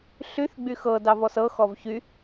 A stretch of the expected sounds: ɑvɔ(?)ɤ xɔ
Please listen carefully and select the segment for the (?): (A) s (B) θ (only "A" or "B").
A